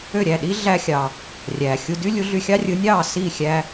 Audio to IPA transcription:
ø˥˩ɾʲæ˥˩ɗi˥ ɮæ˧xʲɑ˩ | rʲæ˩ xʲu˧dy˥lʲu˩˥ɮy˧ xʲɑ˥rʲɯ˩˥nʲɑː˥˩ si˥˩xʲæ˧

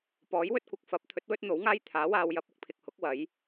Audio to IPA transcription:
pɔː˨˥jwɵ˥t̚kʷɐ˨k̚ fɐ˨˥p̚ t̪ʰɵ˨˥t̚wɵ˥t̚n̪o˨˥wŋaː˥j t̪ʰaː˨˥waː˧wjɐ˧p̚ ʊ˨k̚pʰɪ˧k̚hʊ˨˥k̚ wɐ˨˥j

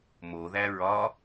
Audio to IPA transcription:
moðæ ɹɒ

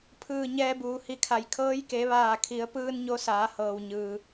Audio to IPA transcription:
pʰɯː˧˩ɲɛː˧buː˩hi˧˩ kʰa˩jkʰɤː˧˥j ke˩˧ʋaː˧˩kʰi˩˧ə̯pɯː˧n ɲo˧˥ saː˩˧ hɤː˩wɲɯː˩

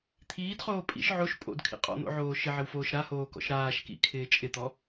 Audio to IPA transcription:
t̪ʰiːdχoː pʼḭʃ ʕoʃ pʼo̰dkʰḭ qʼɔ̰n̪o̰ʕoː ʃɪʕɪwfoːʃ ɾahoːkɔ̰ʃ ɾaːʃkḭkʰɪː t͡ʃʼɪt̪ɔ

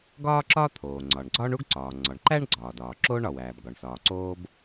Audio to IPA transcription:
ɡɒː˥ǁɒ˥ t̪ʰoː˩ ŋ͡ǀɒ˩ɳɡ͡ǀɒː˥ɳu˥ɡ ǀɒː˩ŋ͡ǀɒ˩ɳǃæ˥ɳ ɡ͡ǀɒː˩dɒː˩ ǁoː˥ɳɒ˩wæː˩b ɡɒ˩ɳsɒː˩ ǀoː˥b

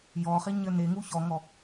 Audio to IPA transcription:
jɔχiɲɘ neŋu çɔŋɔ

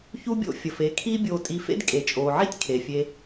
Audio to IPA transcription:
çu˦bʲo̰˦ fʲə˨f e˧ kʰiː˦bʲoː˧tʼi˧fḛ˦d kʼe˨t͡ʃʼoː˨ʕi˦tʲ kʰe˨fʲe˧

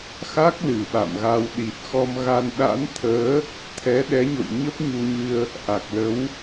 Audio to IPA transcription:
xa˦˥k̚ lɨ˨˩ɓa̰˧˨mɣa˧w ɗi˨˩t̚xɔ˧mɣa˧n ɗa̰˧˥nt̪ʰəː˨˦ | t̪ʰɛ˨˦ɗɛ˨˦ɲo̰˧˨j ɲə˦˥p̚ɲu˧ɲɨ˧ə̯ | ʔa˨˩k̚lə˨˦w

